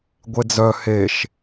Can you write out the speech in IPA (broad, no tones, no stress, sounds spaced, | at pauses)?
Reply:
ɡʷ e d͡z œ h e ʃ